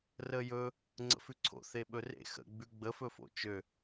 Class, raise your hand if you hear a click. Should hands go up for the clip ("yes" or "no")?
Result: yes